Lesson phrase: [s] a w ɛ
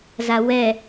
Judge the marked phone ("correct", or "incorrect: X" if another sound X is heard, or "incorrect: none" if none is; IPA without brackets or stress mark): incorrect: z